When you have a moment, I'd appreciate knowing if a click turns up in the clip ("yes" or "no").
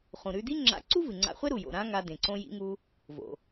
yes